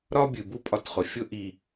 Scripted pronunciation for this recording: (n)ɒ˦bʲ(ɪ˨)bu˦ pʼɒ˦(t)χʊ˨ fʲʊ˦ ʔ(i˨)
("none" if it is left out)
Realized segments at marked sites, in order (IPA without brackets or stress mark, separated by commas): ɾ, ɨ˨, t, i˨